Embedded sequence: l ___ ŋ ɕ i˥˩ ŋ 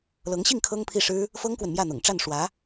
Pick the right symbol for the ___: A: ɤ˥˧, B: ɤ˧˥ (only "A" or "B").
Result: B